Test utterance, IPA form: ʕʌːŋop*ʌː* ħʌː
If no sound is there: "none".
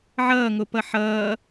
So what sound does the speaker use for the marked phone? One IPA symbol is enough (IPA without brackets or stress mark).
ʌ